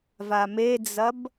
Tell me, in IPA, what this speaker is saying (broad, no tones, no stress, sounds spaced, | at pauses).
v a m e d͡z ɐ b